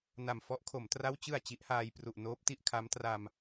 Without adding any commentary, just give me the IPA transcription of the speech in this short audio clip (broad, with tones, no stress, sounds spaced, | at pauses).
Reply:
n a˨˩ m f ɔ˦˥ ʔ kʰ o˩˦ m t r a˥˩ w t͡ɕ ɯ˨˩ a̯ t͡ɕ i˦˥ ʔ h aː˧ j p r u˨˩ ʔ n oː˦˥ p̚ t i˥˩ ʔ kʰ a˦˥ m t r a˧ m